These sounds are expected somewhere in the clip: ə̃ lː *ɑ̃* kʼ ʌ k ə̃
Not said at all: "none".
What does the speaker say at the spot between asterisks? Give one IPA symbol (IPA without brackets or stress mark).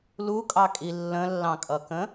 ɑ̃